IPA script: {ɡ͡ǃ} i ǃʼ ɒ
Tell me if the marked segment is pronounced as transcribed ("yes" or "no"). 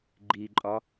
yes